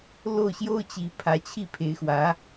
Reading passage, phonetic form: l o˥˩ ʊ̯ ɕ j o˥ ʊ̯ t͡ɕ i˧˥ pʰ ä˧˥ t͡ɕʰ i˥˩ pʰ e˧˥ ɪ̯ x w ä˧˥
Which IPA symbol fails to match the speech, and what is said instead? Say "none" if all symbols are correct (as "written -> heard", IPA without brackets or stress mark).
none